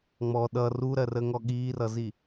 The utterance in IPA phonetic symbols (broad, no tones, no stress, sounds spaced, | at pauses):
ŋ͡m ɔ ɗ ʌ r u ɾ ɜ r ə ŋ ɔ ɠ iː r ʌ z i